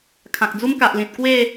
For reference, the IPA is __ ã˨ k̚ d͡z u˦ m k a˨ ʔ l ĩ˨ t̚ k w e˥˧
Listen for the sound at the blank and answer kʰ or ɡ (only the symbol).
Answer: kʰ